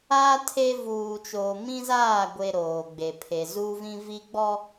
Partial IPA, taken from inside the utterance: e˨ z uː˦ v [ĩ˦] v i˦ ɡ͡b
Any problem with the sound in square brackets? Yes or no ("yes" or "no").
no